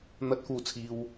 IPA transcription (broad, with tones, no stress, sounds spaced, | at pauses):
n̪ ɐ˨ t̚ k uː˨˩ t͡sʰ iː˨ w